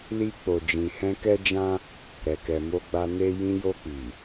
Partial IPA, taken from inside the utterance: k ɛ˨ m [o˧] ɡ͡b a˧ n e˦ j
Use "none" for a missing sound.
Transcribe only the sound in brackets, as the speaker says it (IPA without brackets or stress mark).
o˧